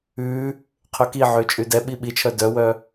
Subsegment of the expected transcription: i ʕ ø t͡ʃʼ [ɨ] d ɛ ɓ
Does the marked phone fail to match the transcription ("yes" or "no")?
yes